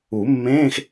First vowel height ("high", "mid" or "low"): high